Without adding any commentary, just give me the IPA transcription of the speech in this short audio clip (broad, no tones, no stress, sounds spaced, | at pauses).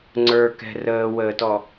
ŋ͡ǀ ə˞ k ɛ̤ r əː w əː t ɔ